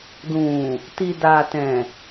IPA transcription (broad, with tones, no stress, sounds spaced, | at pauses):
d ũ˨ | t i˨ d a˨ t ɛ̃˨